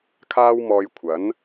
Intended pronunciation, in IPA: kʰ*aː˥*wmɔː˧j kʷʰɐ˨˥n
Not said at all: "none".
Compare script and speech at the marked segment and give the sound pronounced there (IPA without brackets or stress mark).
aː˥